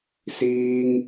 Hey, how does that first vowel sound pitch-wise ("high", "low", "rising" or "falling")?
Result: high